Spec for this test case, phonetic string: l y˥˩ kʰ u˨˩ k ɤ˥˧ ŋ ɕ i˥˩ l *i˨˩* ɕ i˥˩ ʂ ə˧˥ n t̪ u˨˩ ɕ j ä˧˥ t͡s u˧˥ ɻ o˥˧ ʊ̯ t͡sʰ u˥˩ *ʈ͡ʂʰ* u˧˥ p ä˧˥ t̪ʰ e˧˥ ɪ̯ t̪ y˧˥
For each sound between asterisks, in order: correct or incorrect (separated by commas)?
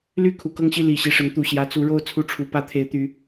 correct, correct